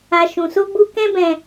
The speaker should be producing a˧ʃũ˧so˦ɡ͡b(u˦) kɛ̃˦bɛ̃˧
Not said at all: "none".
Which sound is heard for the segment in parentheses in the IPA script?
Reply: u˦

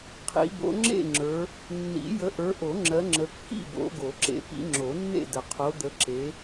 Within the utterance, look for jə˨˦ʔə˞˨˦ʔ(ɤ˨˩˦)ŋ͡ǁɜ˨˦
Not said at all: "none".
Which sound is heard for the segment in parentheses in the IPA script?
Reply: o˨˩˦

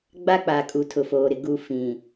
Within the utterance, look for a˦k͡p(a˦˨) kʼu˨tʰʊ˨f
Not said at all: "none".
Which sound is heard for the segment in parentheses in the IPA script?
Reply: a˨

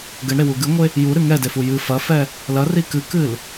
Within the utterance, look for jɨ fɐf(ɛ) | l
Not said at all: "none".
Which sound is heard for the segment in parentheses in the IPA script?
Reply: ɛ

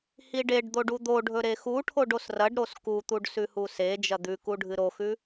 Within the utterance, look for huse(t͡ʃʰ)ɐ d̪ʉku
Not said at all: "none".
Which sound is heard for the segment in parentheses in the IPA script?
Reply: d͡ʒ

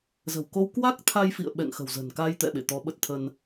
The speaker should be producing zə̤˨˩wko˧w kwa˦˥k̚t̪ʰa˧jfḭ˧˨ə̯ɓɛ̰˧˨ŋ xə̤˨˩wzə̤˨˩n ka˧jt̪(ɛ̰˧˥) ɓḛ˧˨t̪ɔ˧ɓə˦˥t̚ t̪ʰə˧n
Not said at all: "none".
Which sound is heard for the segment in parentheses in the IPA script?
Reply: ɛ̰˧˨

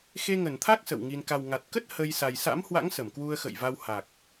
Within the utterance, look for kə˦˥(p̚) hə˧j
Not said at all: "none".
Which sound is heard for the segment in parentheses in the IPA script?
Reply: t̚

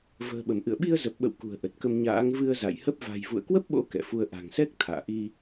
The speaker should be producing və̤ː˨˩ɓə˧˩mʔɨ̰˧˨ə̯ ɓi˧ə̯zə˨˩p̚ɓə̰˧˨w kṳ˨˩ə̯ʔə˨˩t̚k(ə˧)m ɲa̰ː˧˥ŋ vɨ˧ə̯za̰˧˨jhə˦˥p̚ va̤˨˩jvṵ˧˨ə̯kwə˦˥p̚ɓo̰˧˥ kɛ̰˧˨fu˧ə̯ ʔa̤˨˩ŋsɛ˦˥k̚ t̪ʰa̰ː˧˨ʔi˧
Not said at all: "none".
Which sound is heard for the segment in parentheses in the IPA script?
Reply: ə˧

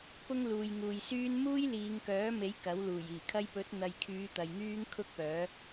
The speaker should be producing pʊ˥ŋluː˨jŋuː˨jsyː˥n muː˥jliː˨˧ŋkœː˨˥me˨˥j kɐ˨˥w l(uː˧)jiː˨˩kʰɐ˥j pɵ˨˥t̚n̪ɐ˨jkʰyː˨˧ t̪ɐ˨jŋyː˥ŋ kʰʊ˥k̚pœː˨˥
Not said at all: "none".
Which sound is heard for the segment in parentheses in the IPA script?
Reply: uː˨˩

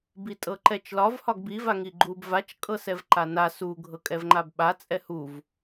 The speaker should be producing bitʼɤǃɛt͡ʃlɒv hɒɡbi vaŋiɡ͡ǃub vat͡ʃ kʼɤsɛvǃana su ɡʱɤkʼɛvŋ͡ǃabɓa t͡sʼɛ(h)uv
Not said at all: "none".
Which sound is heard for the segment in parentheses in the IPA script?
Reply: h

